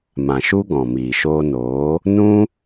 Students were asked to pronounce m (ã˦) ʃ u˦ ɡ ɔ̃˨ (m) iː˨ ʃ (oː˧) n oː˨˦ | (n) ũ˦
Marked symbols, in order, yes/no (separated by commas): no, yes, yes, yes